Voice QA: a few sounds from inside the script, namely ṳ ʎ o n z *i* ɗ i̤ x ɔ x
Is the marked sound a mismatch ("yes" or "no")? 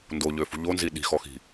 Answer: no